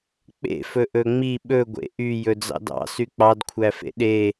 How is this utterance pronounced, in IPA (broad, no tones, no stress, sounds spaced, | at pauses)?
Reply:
k͡p ḛ f ɵ ʔ ɵ ŋ͡m i ɓ ɵ ɡʷ ḛ ʔ y j ɵ d͡z ɑ̰ d ɑ̰ s y k͡p ɑ d kʷʰ æ f ḛ ɗ e